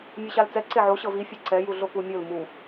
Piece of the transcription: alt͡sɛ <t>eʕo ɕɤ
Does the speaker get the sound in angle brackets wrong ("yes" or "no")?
yes